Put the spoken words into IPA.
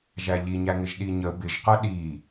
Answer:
ʒ æ ʎ i ɲ æ ŋ ɪ ʒ ɗ i ɲ ə b ɪ ʒ q ʌ ɗ i

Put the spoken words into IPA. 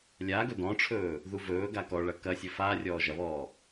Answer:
lʲ aː ɡ ɵ d ɔ̃ ʈ͡ʂʰ ɵː | ð u v ɵː ɡ a k ɔ ɭ ɐ k ɐ sʲ ɵ f aː rʲ ɔː ʒ ɐ β ɔː

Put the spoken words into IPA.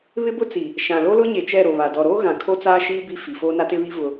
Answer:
β ɪ˦ b ʊ˦ t͡s i˨ | ʃ ã˨ l o˦ l ʊ˦ ɲ e˨ t͡ʃ ɛ˦˨ ɾ o˨ β a˨ d ɔ˨ ɾ oː˦ ɣ ã˨ kʰ o˦ t͡s aː˦ ʃ iː˦ b i˦ f i˨ f o˦ n a˦ t ɪ˦ β i˦ v ʊ˦

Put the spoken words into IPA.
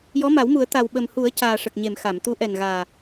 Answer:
j ɔ˧˥ m a˨˩˦ w m u˨˩˦ ə̯ t̪ a˨˩ w ɓ ə˨˩ m h u˨˩˦ ə̯ c aː˨˩ ʂ ə˨˩ k̚ ɲ e˨˩˨ m x a˨˩˨ m t̪ u˧˥ ʔ ɛ˨˩ n ɣ aː˨˩

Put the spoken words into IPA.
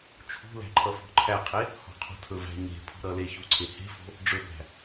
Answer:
t͡ʃʰ ṳ l æ̤ ǃʰ ʌ f ɔ̤ ǃʰ æ qʰ e | h ɔ̤ qʰ o̤ tʰ ɵ v æ̤ ɲ e̤ pʰ ṳ ɾ ʌ l e ç u ǀʰ e h e̤ f o̤ | ɖ͡ʐ ɵ b æ̤

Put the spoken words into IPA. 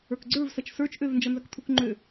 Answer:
ə˞ k ɡ͡ǀ ə˞ v s ɐ t͡ʃ s ə˞ t͡ʃ ʔ ø v n d͡ʒ ɐ n z ɐ k t̪ʰ u k ŋ͡ǃ ø

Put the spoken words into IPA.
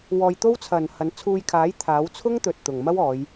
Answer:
w ɔː˧ j t̪ o˥ w t͡sʰ ɐ˨ n h ɐ˨˧ n t͡sʰ uː˧ j kʰ aː˨˥ j t̪ʰ aː˨˥ w t͡sʰ ʊ˥ ŋ t̪ ɵ˨ t̚ t̪ ʊ˨˩ ŋ m ɐ˥ w ɔː˨˧ j

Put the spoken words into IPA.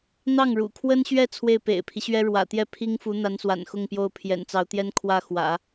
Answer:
n̪ ɑ˥˩ ŋ ɻ ṵ˨˩ kʰ w ə˥ n ɕ ɥ ɛ˥˧ t͡sʰ w e˥˩ ɪ̯ p ḛ˨˩ ɪ̯ pʰ i˦ ɕ ɥ ɛ˥ ɻ w ä̰˨˩ t̪ j ɛ˥˩ pʰ i˥ ŋ f u˧˥ n̪ a˧˥ n s w a̰˨˩ n x ʊ˥˧ ŋ p j o˥˩ ʊ̯ pʰ j ɛ̰˨˩ n t͡s ɑ˧˥ ʊ̯ t̪ j ɛ˥ n kʰ w ä˥˩ x w ä̰˨˩˦

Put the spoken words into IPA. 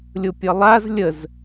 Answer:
lʲ ʊ pʲ ʌ lˠ a z lʲ ə z

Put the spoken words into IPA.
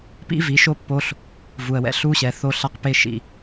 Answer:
p ḭ˦ v i˨˦ ʃ o˦ pː o˧ ɬ | v u˨ ə̯ w ɛ̰˧ ɬ u˦ ɕ ɛ˨ θ o˧ ɬ a˧ q p e˧ ʃ ḭ˨

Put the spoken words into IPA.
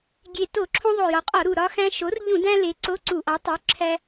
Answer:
ɡʲ e˨˩ t o˧˩˧ ǁʰ õ˧ ðˤ o˨˩ j ɒ˩˧ qʼ ɒ˧˩˧ ɾ u˨˩ ɾ ɒ˧ x æ̃˧ ʃ o˩˥ r ʎ ũ˧˩˧ d æ̃˧ l e˩˧ ǀ o˧˥˧ ǀ u˧˩˧ ʔ ɒ˩˥ tˤ u˩˥ ǁʰ æ˧

